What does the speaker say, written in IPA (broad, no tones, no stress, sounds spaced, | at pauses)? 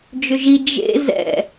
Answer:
d͡ʒ ʏ ʒ i d͡ʒ ḛ z ɛ̰